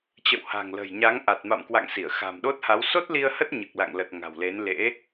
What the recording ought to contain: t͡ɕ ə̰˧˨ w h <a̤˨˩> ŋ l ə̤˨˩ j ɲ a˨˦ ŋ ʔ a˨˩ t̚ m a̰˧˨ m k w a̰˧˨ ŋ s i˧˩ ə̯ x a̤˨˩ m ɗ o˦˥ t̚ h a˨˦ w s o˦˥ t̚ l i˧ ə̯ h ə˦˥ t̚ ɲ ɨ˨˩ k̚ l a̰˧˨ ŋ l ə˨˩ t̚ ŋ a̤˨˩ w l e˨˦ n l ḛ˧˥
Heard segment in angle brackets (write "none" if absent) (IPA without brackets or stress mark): a̤˨˩